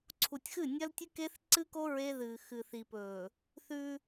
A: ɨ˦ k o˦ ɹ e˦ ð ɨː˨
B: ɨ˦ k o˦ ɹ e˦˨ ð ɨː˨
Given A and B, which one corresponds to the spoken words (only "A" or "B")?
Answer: A